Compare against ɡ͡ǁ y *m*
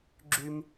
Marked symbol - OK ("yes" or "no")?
yes